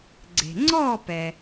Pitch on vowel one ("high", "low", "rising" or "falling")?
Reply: low